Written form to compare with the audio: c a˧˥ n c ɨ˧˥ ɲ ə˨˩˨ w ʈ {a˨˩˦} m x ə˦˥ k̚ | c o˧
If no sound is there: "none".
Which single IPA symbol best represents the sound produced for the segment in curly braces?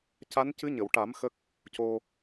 a˨˩˦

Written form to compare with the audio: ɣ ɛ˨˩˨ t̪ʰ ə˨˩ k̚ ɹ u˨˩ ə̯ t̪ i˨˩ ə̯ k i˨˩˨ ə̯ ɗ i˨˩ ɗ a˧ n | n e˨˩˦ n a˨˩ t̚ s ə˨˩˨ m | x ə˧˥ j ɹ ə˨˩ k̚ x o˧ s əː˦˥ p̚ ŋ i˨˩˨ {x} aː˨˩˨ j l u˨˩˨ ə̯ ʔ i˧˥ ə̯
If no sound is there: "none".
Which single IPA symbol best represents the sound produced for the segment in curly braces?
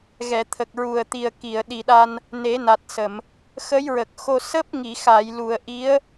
x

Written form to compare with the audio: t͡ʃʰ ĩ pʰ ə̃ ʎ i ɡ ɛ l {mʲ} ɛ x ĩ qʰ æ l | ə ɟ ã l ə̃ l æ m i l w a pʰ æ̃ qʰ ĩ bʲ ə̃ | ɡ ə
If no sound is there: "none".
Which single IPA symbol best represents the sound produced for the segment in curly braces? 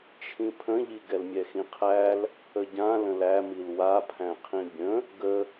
mʲ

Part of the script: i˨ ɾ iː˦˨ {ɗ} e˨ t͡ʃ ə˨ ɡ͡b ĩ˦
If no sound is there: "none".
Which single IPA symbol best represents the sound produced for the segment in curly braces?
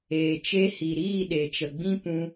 ɗ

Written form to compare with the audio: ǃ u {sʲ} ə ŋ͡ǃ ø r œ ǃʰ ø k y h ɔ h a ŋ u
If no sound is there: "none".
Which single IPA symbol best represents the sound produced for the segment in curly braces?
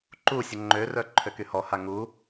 sʲ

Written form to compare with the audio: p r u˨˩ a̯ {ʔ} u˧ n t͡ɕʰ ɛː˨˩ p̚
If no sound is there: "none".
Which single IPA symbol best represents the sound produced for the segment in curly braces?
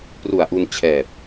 ʔ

